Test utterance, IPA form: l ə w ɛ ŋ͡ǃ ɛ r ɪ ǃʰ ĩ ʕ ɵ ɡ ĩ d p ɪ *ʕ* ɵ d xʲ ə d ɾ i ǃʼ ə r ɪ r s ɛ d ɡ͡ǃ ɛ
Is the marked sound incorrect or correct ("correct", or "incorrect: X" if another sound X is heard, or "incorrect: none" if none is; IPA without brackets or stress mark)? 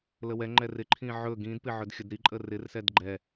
correct